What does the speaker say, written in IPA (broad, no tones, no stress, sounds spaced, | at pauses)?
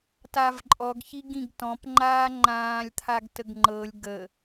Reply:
t a v ǃʼ ɔ ɡ ç i ɡ ĩ ɡ t ɔ̃ p ŋ͡ǃ aː ŋ͡ǃ ãː lʲ t̪ʰ a ɡ t ə ɡ ŋ͡ǃ ɤ lʲ ɡ ə